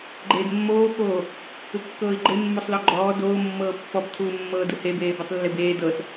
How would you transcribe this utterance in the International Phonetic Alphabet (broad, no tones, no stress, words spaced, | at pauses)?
ɡ͡ǃeːdmːoːkoː | ɯkːɤːi̯ɡ͡ǃe mːosˤlɔɡ͡ǃɔː doːmːɤː pːɔbtʰuːmːɤː dɯhebeː bɛsˤlːebeː dɤs